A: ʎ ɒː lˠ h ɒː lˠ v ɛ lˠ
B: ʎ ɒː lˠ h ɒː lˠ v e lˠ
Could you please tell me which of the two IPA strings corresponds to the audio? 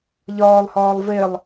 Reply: B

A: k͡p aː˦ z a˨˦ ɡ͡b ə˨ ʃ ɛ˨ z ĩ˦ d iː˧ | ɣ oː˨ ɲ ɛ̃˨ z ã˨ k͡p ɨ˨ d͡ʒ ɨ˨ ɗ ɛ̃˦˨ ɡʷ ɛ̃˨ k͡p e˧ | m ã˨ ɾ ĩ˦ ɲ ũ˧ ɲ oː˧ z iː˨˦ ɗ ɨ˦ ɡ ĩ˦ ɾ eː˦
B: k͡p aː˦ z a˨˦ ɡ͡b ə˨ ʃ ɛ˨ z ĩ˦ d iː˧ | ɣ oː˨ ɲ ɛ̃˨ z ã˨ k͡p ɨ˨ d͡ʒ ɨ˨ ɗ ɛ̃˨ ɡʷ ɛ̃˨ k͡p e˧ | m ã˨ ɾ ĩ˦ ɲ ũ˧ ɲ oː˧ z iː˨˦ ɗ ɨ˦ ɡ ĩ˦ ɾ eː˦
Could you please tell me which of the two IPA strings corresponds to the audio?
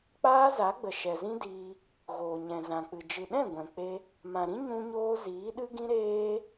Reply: A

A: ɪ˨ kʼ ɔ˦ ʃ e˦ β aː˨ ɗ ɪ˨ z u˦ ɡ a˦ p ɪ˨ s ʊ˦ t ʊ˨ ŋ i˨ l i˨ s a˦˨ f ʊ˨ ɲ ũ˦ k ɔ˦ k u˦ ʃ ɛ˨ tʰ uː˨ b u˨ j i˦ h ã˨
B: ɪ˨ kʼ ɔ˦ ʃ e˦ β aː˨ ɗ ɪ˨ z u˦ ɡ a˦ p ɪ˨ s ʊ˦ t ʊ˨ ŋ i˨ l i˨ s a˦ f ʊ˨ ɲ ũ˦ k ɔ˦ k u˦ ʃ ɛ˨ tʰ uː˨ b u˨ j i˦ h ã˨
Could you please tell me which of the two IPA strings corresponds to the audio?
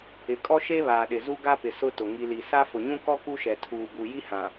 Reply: B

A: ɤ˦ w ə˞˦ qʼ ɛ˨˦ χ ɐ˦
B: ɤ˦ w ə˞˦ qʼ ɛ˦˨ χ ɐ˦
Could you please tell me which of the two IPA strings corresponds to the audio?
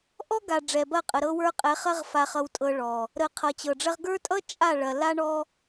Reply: A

